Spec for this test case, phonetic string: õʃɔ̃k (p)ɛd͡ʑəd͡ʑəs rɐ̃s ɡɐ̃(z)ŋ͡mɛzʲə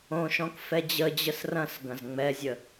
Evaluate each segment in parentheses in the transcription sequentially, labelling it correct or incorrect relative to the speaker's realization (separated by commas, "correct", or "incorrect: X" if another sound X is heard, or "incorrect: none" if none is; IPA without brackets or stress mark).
incorrect: f, correct